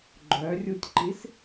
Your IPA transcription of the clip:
ɡ͡ǃœrʲutʲǃis

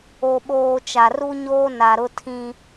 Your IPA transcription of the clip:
o˨ɓoː˨ t͡ʃa˨ru˦ɲoː˦ na˨ɾʊ˦ tʰĩ˦

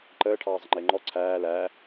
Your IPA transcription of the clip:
ǃəː ʈʰɑːzˤəŋ͡ǃɪːŋ͡ǃɔ ǀʰæː læː

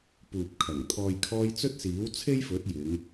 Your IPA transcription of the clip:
puː˨p̚kʰɐ˨˩ŋ t̪ʰɔː˨jkʰɔː˧j t͡sɵ˥t̚siː˨˥wt͡sʰe˥jfɵ˨˥t̚ jɪ˨˧ŋ

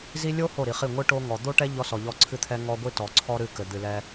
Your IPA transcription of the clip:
zi˦ lʲo˦ ho˦˨ɾi˨χi˦˨ ŋʷɨ˦ ʈo˦ŋɔ˨ d̪o˦ʈɛ˦ ʎɔ˦sɔ˨ʎɔ˦ ǀʰɨ˦t̪ʰɛ˦ŋɔ˦ ɡʷi˦tɔ˨ǀʰɔ˦ɾɨ˦˨ kɘ˨ d̪ɨ˨lɛ˦

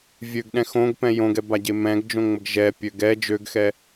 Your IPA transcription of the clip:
vʲøɡɗɛ̃ xõɡpɛ̃ jõɡɛbaɟe mɛ̃ɡd͡ʒõŋ͡məɡ ʒɛpʲø ɡɛ d͡ʒøɡxɛ

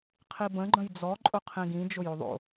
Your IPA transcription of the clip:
qʰibə̃ ɡ͡ǃə̃jd͡zɔ ǃʼʊqʰĩɡĩ d͡ʒʊjoðˤo̰

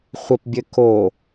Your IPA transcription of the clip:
χʷəpbʲɘ ko

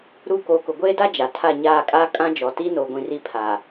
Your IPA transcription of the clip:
ɾu˦˨ koː˨kʊ˨ɡʷeː˦da˦ d͡ʒa˨ tʰa˦˨ɲaː˦˨kʼaː˦ kʼã˦d͡ʒɔ˨ti˦ noː˨ɡʷĩ˨ ri˦pʰa˨

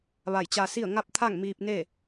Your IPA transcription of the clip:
ʋa˧˩jt͡ɕa˧si˥˨ə̯ ŋa˥˨p̚t̪ʰa˥˨ŋ miː˧p̚ne˥˨

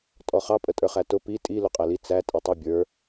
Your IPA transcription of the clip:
tʼɔχɑ pʼətʼə˞χætʊ pi tʼi luqʼæli t͡sæ tʼitˤu bʲə˞

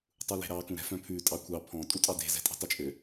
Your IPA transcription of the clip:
tˤule̤ɾɑ kũɾɛ̤fœ̃pʰʉ tʼɑkʷʰɑ pʰɔ̃ tʼutʼɑde̤ zɛ̤tʼe̤tˤot͡ʃʼø

